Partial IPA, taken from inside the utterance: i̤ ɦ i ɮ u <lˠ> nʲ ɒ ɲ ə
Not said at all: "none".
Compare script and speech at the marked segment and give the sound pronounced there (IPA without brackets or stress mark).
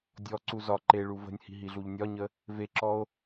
ʎ